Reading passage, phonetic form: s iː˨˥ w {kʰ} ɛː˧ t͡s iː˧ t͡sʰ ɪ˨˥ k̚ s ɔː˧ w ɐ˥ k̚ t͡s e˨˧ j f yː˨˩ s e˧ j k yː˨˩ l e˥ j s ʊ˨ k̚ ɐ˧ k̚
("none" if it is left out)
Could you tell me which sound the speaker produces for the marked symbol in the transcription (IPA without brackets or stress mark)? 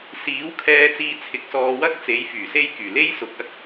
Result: kʰ